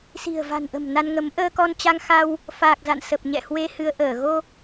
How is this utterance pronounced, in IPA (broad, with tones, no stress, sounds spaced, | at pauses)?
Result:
s i̤˨˩ ə̯ v a̤˨˩ n ʔ ə̤˨˩ m n a˧ n ŋ ə˨˦ m ʔ əː˧ k ɔ˧ n t͡ɕ a˧ ŋ x a˧ w | f aː˨˩ k̚ z a̰˧˨ n s ə˨˩ p̚ ɲ ɛ̰˧˨ h w e˧ h ɨ˧ ə̯ ʔ əː˧˩ ɣ o˧